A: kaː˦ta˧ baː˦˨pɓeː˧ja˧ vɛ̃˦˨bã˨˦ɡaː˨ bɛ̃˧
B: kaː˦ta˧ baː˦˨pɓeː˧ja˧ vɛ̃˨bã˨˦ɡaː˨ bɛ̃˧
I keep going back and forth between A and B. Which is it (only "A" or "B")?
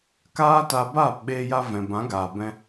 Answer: B